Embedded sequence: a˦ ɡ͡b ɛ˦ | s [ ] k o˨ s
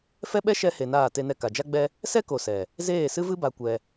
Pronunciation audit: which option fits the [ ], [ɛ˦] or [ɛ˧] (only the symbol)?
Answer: ɛ˦